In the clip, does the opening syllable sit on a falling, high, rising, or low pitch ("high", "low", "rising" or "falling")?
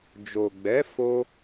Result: low